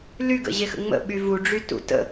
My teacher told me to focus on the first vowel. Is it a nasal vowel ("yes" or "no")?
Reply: no